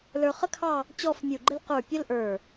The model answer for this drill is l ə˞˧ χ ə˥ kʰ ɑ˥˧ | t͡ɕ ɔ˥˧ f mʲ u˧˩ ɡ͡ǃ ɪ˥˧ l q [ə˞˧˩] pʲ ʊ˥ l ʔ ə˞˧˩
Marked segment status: correct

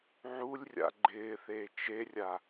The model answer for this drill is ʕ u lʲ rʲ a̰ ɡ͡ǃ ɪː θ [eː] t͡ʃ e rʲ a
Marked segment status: correct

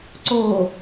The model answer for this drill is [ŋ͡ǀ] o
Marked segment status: incorrect: ǀ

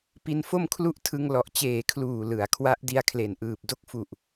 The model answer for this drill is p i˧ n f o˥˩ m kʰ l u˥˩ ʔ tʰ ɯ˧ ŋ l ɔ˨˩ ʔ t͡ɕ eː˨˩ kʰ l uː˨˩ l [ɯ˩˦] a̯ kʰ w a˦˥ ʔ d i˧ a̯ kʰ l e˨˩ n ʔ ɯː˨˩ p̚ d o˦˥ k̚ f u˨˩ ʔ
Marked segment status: correct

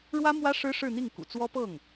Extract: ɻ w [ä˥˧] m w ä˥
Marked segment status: incorrect: ä˥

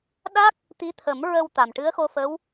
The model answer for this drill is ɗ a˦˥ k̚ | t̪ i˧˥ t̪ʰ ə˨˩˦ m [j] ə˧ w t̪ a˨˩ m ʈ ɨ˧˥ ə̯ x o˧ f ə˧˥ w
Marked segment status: incorrect: ɹ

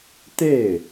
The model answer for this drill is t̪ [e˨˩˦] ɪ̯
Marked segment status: incorrect: e˥˩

